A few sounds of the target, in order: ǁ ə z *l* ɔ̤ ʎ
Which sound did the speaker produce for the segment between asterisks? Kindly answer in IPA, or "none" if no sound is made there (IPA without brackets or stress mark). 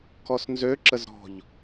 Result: ɾ